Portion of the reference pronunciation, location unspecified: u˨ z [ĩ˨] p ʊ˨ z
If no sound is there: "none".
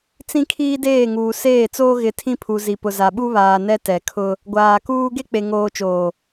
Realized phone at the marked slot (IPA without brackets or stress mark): i˨